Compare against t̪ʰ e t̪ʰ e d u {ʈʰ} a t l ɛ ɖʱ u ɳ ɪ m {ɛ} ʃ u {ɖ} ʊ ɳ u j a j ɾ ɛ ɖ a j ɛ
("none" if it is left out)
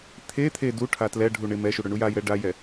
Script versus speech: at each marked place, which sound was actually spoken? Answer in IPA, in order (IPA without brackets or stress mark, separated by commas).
ʈʰ, ɛ, ɽ